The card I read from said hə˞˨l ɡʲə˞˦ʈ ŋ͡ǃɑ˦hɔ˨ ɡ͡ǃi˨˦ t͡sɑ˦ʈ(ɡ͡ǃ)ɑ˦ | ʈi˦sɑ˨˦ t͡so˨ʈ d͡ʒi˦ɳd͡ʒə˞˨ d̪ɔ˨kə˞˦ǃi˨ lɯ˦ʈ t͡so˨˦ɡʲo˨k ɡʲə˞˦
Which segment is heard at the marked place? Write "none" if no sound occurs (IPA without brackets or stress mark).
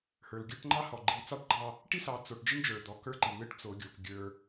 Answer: ɡ͡ǃ